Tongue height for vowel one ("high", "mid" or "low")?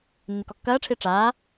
high